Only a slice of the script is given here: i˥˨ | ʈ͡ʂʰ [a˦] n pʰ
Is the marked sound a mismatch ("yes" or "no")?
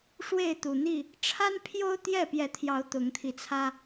no